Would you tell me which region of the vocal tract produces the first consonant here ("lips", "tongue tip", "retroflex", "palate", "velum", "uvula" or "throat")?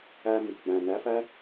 lips